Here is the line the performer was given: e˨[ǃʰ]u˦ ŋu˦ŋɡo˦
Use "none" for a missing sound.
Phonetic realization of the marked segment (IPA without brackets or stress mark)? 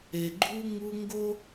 ɡ͡ǃ